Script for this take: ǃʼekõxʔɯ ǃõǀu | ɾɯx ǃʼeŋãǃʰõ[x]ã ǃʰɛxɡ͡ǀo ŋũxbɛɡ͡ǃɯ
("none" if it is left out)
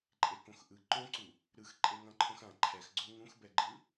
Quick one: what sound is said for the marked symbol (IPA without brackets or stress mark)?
x